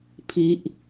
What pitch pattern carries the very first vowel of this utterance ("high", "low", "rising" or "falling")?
high